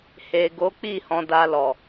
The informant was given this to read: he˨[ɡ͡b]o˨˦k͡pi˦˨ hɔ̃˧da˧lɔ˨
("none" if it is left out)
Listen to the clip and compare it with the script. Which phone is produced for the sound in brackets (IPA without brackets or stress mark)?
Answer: ɡ